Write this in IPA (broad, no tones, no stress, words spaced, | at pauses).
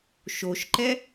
ʃoʃǃɛ